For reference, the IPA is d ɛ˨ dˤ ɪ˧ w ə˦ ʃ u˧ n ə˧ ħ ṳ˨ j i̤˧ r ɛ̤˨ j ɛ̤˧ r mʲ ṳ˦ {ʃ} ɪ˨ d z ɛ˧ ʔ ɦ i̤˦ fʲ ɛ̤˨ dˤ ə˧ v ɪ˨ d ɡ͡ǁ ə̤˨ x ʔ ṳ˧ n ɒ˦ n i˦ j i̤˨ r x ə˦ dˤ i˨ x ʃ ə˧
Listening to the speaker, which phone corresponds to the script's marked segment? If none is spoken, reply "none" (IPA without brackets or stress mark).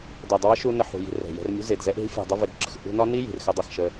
z